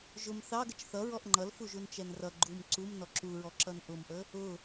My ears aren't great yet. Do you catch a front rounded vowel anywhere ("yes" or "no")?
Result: no